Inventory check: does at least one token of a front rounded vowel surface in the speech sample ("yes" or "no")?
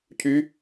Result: yes